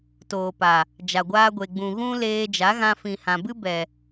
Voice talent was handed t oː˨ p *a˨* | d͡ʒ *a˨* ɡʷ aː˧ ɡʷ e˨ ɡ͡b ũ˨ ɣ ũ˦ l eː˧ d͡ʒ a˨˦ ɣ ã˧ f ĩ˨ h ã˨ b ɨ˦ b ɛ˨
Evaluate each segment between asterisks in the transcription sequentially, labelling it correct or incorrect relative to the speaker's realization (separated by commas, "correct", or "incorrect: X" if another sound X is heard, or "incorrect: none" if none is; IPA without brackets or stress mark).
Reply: correct, correct